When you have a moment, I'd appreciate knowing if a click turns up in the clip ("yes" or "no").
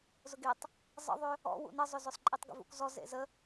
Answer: yes